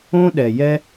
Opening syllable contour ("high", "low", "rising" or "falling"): high